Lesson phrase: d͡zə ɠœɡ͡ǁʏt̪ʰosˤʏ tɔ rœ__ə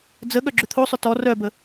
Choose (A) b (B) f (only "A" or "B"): A